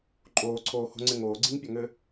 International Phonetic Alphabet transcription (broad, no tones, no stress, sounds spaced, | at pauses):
ǃʼ oː ǀʰ oː h o̤ ŋ͡ǀ ɪ ŋ oː ɡ͡ǀ i ŋ pʲ a ŋ ɘ